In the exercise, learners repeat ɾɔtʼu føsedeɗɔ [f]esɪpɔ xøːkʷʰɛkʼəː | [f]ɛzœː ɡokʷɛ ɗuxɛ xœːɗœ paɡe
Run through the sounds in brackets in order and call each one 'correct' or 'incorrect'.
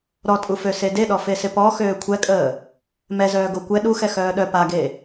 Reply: correct, incorrect

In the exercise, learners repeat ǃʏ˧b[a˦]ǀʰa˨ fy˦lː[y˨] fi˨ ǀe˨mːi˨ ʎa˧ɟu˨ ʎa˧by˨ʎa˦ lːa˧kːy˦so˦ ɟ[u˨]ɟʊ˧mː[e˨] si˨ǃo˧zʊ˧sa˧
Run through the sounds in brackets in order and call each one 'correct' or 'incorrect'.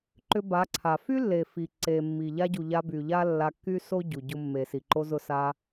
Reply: incorrect, incorrect, correct, correct

